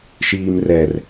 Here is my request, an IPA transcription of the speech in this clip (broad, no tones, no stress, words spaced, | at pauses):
ʃiːmrɛr